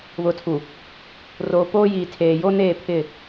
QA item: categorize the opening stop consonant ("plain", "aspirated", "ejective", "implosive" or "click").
aspirated